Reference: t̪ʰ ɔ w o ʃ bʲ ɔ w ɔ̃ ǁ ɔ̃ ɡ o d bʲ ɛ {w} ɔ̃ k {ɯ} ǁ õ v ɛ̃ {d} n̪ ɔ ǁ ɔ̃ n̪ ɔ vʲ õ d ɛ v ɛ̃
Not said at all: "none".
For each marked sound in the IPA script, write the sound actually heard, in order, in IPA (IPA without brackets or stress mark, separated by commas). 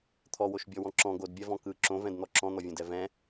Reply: v, ɯ, d